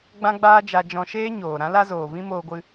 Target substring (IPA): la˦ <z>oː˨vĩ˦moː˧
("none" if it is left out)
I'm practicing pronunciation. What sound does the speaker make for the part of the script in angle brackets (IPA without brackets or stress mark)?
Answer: z